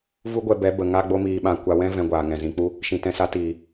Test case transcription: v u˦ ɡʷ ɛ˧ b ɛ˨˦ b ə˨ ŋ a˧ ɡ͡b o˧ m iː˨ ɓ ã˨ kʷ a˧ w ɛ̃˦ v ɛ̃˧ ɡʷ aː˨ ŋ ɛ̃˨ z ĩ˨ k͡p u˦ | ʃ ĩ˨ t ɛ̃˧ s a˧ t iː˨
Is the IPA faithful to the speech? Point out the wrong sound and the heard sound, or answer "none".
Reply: none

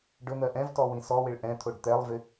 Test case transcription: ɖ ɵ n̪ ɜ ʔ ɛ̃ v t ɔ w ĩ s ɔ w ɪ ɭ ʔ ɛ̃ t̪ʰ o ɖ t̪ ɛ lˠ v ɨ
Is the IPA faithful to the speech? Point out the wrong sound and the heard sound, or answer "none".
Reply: ɨ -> ɪ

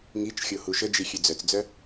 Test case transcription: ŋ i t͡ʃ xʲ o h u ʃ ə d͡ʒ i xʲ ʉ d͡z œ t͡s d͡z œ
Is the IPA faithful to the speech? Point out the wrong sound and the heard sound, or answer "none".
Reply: none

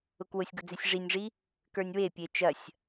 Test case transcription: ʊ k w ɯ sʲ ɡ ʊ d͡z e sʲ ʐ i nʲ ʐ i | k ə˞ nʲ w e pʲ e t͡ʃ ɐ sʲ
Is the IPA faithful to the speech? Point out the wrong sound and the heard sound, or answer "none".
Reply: ɯ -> ʊ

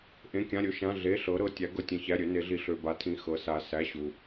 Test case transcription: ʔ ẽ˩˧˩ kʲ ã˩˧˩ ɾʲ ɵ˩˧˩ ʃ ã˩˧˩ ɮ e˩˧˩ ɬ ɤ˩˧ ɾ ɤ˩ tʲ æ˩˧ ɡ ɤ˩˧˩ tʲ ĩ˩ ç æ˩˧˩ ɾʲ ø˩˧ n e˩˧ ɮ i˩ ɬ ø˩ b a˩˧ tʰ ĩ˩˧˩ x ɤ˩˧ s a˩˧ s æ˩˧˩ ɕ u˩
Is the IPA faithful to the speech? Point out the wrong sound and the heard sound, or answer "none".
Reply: none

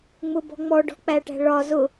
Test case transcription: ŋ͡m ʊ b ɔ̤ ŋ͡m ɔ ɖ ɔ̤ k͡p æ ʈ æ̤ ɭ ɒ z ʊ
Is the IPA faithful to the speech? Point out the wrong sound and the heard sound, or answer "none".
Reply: none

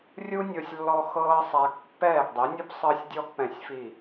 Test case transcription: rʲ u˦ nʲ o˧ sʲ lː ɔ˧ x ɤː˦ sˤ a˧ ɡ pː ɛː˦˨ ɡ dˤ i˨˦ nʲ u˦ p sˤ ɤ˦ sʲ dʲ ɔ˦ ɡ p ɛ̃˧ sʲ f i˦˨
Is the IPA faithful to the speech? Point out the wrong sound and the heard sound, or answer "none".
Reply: none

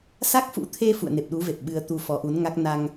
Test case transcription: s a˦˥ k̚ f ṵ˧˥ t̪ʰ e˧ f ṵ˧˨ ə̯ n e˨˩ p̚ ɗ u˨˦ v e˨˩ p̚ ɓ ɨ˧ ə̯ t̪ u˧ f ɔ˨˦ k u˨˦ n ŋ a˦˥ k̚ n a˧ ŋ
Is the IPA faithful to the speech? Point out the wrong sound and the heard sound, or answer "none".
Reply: k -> ʔ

